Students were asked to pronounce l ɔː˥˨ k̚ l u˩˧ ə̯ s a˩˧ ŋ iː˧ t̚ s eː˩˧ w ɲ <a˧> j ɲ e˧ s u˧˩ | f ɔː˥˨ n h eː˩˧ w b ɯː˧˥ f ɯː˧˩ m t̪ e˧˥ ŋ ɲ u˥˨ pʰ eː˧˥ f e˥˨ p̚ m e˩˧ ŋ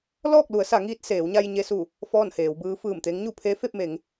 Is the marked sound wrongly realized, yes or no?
no